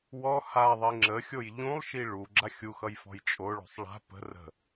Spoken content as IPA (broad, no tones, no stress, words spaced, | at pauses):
wɔ haðˤi ŋ͡ǁəxʲoj ʎũlˠʃi ɭu ɡ͡ǁaxʲuxʌj fɔ̤jt͡ʃʼoɭo̤sˤ ɭa̤ pə̤ rə̤